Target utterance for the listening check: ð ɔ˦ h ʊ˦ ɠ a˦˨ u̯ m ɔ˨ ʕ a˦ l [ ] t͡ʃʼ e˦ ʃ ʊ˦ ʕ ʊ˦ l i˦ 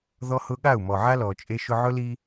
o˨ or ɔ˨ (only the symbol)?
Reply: ɔ˨